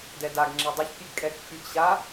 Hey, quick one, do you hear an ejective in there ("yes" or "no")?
yes